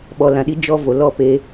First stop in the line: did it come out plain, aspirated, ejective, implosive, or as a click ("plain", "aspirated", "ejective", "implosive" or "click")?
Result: implosive